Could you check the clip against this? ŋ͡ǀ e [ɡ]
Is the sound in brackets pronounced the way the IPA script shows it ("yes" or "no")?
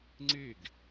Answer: yes